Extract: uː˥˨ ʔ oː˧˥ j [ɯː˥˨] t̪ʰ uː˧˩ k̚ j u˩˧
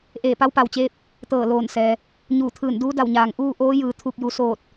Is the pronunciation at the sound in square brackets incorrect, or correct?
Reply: incorrect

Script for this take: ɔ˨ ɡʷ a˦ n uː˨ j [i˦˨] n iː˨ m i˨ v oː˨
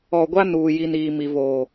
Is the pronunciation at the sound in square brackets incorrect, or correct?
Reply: incorrect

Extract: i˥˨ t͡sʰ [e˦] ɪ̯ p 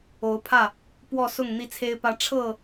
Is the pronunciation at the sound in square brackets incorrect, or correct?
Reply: correct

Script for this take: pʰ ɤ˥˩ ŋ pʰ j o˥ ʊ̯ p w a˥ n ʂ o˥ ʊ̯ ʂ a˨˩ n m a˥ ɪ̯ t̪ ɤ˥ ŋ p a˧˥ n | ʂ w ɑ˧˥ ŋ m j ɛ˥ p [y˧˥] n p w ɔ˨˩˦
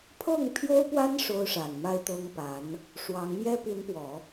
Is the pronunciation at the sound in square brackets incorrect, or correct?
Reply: incorrect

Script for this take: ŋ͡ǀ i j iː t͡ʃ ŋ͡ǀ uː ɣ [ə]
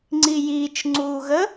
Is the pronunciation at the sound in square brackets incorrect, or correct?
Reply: correct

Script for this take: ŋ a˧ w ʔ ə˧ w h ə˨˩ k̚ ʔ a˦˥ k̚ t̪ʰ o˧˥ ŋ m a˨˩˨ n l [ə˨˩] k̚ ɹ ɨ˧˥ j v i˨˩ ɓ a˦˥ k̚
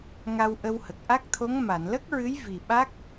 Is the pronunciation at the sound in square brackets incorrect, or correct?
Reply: incorrect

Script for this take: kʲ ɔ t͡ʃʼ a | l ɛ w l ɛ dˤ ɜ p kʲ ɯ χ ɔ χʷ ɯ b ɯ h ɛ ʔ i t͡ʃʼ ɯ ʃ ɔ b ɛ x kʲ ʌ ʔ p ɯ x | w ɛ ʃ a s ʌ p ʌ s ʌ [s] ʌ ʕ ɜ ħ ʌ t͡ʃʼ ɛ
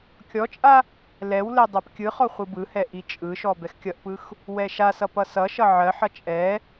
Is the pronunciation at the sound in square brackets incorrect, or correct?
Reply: incorrect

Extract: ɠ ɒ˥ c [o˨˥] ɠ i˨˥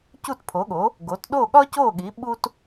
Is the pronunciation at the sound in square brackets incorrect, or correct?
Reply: incorrect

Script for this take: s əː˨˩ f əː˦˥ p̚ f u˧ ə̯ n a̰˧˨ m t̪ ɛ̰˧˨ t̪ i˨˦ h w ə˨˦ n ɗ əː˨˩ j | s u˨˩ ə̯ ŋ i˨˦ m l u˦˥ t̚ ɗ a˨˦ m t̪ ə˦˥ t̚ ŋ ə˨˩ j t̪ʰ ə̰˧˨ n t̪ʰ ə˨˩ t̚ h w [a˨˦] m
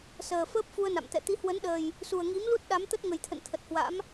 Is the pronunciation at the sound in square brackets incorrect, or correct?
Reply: incorrect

